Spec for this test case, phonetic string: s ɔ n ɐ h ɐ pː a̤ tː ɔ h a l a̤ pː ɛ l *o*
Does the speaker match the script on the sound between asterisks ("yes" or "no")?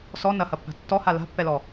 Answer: no